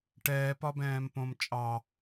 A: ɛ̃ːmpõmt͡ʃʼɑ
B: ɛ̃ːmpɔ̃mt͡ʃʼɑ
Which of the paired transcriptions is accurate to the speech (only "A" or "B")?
A